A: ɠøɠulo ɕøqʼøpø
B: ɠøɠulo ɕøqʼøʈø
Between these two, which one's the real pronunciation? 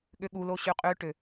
B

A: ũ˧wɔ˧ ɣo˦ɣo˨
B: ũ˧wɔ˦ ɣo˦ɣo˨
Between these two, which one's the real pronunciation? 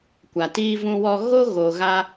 A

